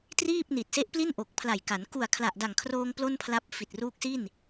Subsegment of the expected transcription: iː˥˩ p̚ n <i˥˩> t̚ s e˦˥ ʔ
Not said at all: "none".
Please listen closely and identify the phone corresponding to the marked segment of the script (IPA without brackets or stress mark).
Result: i˨˩